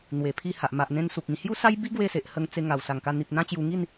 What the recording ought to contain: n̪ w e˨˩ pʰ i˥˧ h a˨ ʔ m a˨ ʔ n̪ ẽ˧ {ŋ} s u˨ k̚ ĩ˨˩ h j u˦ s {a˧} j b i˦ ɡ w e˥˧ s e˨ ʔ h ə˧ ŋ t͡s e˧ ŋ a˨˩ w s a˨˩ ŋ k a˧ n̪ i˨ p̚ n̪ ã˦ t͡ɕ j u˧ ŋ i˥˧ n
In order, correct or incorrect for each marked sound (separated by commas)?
incorrect, incorrect